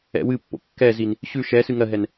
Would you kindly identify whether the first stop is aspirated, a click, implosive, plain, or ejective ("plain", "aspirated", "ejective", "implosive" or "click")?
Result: plain